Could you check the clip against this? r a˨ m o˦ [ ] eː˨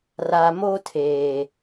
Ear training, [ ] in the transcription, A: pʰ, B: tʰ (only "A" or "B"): B